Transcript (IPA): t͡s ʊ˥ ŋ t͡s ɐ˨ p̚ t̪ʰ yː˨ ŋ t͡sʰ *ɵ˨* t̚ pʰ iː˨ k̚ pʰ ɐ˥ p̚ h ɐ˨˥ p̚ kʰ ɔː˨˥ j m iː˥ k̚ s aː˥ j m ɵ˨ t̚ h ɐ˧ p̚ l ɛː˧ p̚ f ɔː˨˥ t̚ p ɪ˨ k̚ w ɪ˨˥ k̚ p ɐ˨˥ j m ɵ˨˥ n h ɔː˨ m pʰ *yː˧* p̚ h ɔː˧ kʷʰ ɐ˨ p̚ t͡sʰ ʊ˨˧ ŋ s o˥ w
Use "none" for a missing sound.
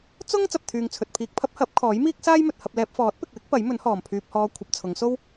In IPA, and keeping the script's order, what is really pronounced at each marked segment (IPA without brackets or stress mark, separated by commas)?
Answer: ɵ˨, yː˧